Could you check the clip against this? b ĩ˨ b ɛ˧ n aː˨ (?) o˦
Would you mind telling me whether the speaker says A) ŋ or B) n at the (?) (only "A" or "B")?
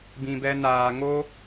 A